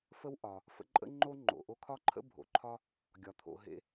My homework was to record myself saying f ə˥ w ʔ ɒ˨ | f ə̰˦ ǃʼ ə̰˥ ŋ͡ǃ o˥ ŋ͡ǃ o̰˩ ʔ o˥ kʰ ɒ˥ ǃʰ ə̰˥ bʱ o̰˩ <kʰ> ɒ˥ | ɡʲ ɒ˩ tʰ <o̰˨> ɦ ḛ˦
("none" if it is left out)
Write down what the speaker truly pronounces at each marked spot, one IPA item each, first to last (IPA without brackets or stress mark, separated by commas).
ǃʰ, o̰˨